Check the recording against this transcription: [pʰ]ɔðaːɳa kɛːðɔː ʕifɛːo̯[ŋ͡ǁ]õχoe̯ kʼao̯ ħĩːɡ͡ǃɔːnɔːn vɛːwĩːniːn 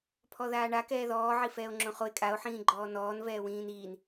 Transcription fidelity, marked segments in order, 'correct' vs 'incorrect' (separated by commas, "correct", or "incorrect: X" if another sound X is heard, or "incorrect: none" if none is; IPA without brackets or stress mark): correct, correct